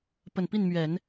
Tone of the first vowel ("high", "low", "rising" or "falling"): low